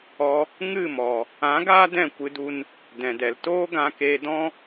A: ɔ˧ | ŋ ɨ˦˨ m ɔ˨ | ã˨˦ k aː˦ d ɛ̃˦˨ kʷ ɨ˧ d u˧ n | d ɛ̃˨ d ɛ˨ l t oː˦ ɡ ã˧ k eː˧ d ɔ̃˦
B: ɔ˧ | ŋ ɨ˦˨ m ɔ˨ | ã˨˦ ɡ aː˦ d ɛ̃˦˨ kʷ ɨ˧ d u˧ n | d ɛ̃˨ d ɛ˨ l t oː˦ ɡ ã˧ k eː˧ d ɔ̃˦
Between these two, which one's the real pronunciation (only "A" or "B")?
B